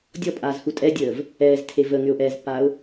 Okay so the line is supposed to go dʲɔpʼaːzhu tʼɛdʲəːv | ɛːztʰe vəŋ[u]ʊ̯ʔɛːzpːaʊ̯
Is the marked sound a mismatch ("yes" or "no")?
yes